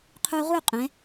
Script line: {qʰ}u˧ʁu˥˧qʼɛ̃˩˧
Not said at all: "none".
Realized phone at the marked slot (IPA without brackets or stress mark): qʰ